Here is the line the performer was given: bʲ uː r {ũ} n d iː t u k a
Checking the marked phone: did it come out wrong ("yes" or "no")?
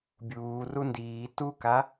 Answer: yes